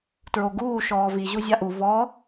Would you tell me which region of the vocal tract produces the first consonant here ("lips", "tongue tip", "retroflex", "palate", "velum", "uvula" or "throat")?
tongue tip